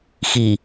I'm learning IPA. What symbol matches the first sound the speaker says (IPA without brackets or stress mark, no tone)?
x